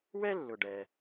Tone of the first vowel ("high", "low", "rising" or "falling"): high